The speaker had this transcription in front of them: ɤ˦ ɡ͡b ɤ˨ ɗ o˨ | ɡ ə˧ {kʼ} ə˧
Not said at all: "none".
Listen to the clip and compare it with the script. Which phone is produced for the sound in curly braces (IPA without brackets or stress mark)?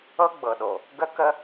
k